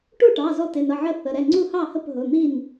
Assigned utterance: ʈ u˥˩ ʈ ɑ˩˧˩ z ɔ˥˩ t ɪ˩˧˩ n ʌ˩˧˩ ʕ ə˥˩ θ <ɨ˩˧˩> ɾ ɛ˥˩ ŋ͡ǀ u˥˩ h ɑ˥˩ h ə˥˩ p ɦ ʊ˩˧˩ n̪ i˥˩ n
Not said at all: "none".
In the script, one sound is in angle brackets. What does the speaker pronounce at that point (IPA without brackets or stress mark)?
ə˩˧˩